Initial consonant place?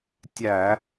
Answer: alveolar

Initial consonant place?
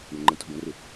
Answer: retroflex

